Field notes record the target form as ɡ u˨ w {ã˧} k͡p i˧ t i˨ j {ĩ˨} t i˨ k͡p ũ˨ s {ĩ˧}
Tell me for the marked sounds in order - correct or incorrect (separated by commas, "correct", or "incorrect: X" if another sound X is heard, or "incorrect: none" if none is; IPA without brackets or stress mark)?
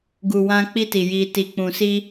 correct, incorrect: i˨, incorrect: i˧